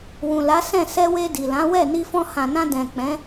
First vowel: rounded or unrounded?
rounded